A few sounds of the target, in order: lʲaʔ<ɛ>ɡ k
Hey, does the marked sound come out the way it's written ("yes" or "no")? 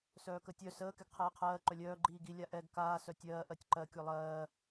yes